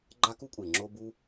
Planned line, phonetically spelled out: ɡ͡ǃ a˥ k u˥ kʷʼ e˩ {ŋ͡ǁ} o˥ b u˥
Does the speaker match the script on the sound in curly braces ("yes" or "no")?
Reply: yes